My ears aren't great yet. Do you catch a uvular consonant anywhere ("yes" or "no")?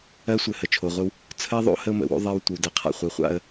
yes